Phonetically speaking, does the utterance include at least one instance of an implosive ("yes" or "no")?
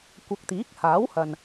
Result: no